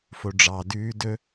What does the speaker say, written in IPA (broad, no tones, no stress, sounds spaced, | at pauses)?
f o ɖ͡ʐ ɑ d ʉː d ɵ